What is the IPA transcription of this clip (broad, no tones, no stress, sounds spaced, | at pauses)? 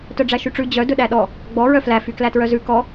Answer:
t œ ɖ͡ʐ æ ʃ y ʈ͡ʂ ʉ d͡ʑ œ d ɵ ɗ æ ɗ ɔ | ɡ͡b ɔ ɹ œ f l æ f y k l æ t ɹ œ z ʉ k ɔ